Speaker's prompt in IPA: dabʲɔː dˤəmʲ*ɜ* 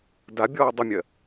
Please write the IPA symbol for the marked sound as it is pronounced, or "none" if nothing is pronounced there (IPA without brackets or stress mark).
ɜ